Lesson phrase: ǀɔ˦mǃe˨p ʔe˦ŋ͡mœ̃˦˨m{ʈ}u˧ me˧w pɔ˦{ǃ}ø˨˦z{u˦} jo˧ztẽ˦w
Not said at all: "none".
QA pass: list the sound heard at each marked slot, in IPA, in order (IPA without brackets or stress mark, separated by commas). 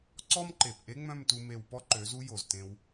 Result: t, ǃ, u˦